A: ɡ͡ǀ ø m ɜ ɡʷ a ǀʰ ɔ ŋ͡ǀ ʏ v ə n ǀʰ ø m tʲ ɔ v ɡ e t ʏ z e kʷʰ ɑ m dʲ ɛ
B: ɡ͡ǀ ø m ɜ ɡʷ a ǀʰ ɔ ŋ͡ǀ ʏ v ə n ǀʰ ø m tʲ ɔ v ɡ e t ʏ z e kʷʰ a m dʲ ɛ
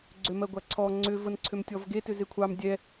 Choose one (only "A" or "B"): A